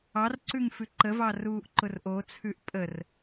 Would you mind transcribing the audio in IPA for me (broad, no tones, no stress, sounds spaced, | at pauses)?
ɑ r ǀ ʉ ŋ f ʉ ǃ ə v ɑ r uː ʔ ǃ ʊ r ʔ o t͡sʰ ʉ ʔ pʼ ə r